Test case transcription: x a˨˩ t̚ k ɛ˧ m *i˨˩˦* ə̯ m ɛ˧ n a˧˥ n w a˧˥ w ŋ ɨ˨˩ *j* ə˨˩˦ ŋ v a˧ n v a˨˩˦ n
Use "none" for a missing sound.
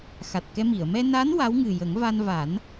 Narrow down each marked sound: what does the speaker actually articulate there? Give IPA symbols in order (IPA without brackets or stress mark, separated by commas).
i˨˩˨, j